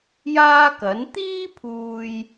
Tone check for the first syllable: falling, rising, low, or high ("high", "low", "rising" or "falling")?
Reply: high